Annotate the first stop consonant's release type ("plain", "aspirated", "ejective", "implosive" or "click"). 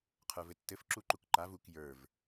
aspirated